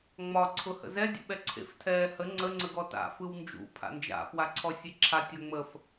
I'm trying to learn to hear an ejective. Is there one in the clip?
no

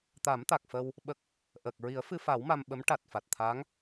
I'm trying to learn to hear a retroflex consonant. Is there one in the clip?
yes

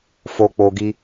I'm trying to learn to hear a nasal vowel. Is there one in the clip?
no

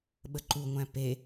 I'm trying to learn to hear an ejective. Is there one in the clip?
no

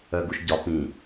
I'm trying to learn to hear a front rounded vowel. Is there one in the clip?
yes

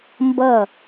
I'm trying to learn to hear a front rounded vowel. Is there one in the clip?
no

